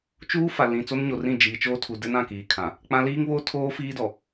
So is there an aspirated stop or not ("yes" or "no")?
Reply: yes